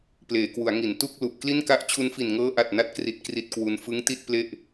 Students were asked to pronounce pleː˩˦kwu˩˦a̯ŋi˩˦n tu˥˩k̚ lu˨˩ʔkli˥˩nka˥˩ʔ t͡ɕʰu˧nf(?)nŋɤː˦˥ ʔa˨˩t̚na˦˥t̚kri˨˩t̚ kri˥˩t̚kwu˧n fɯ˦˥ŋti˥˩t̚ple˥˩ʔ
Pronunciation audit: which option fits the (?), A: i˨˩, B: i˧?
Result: A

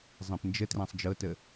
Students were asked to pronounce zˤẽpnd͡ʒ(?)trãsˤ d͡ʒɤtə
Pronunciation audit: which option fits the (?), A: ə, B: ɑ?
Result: A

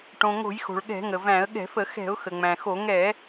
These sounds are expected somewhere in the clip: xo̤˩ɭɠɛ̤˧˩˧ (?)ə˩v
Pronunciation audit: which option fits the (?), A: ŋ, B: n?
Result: A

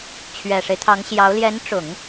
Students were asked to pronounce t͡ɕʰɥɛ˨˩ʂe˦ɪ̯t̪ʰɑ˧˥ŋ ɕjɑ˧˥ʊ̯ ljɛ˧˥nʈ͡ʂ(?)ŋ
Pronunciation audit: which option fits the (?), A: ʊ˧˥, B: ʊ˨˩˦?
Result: B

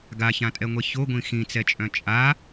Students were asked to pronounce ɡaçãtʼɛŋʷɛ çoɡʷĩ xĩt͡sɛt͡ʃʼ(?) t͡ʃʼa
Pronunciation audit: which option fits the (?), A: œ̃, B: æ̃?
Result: A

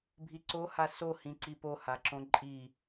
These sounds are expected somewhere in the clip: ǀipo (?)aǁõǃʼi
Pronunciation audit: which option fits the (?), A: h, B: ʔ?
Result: A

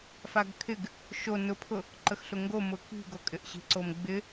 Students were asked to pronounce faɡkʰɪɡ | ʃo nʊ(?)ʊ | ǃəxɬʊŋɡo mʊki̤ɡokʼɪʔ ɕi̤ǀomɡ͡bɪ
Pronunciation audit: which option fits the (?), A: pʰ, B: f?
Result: A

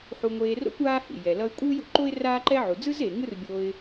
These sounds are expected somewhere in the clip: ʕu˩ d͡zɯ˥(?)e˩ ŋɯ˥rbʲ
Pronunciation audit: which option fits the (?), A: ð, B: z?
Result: B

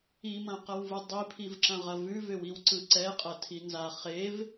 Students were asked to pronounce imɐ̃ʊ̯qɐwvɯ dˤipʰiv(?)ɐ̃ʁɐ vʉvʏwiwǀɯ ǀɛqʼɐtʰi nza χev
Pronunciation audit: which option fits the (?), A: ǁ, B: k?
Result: A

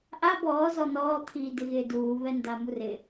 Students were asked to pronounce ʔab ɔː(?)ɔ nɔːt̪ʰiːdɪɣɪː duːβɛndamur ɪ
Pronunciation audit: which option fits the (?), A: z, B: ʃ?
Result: A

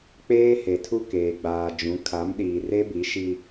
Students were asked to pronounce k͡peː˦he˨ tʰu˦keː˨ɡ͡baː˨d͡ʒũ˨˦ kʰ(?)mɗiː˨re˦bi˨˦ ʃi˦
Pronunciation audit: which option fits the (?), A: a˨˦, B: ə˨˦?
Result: A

